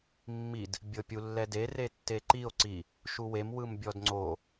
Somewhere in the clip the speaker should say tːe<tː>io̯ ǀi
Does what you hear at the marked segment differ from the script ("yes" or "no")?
yes